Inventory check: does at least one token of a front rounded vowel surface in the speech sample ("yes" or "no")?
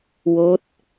no